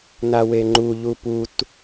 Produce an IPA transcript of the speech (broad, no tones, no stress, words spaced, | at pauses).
naweŋ͡ǃu ʎuput